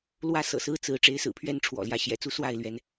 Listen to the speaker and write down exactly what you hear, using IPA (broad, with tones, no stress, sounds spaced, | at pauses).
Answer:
l w ä˥˨ s ɤ̰˨˩ s ɹ̩˦ t͡s ɹ̩˨˦ ʈ͡ʂ e˨˦ ɪ̯ s ɹ̩˨˩ pʰ ɥ ɛ˦ n ʈ͡ʂʰ w ɔ̰˨˩ l j ä˨˦ ɕ j ɛ̰˨˩ t͡s u˦ s w a˥˨ ɪ̯ l ɥ ɛ˨˦ n